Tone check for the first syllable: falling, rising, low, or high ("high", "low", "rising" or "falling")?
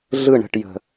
falling